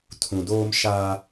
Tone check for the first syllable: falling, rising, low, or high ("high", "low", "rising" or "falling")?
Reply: low